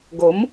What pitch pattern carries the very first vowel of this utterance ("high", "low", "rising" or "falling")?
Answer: rising